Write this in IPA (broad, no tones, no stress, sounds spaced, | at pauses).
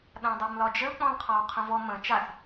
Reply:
ɗ ã dˤ a m l ɒ d͡ʒ ə l k͡p ɔ̃ l qʰ ɒ w qʰ ə̃ v ɔ m ə̃ t͡ʃ a θ